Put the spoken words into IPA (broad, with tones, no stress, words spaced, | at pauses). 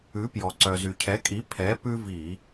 ʉ˩˥pjɔ˩ ǀœ˩zy˩cʰɛ˩˥kʼi˩˥ pʰɛ˩˥ pʉ˦vi˧˩˧